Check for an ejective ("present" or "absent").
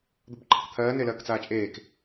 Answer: present